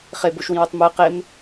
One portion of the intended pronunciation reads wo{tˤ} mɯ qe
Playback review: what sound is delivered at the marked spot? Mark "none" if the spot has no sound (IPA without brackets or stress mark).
tˤ